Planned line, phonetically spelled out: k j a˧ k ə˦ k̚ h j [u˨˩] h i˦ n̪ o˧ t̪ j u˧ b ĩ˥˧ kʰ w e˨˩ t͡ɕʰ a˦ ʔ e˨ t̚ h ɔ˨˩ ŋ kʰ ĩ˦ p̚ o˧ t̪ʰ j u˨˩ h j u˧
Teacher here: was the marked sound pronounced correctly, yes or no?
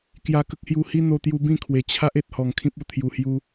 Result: no